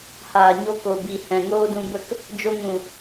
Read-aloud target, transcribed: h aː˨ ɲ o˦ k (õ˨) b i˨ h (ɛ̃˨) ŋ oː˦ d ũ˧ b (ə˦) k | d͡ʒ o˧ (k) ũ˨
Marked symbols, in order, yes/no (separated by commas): no, yes, no, no